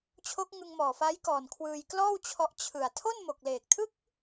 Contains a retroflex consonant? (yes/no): no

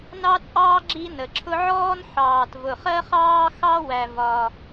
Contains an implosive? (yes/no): no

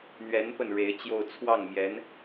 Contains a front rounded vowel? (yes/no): no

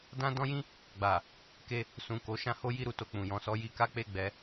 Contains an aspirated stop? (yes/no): no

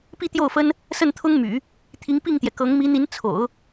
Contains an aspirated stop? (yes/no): yes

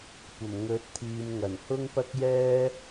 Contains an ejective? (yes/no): no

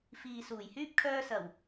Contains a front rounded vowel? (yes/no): yes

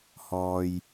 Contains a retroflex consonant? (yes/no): no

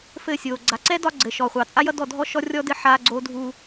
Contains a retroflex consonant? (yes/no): no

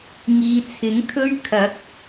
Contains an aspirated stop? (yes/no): yes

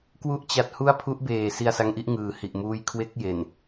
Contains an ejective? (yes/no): no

